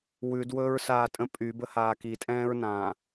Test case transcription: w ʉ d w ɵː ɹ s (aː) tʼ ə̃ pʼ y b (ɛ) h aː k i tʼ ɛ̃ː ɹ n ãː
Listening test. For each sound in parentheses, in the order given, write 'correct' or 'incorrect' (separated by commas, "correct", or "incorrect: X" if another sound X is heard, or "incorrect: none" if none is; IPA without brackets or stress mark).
correct, incorrect: ə